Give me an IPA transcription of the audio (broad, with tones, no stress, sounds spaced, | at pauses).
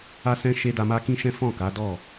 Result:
a˦ s ɛ̃˦ ʃ e˧ d a˧ m a˦ k ĩ˦ ʃ ɛ̃˦ f ɔ̃˦˨ k a˨˦ d ɔ˦˨